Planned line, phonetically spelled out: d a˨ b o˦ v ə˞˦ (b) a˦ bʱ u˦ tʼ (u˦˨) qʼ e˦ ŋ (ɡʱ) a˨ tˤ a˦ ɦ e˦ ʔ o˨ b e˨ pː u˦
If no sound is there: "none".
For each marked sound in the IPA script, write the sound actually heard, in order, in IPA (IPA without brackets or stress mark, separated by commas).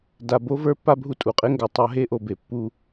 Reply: pː, u˨, ɡ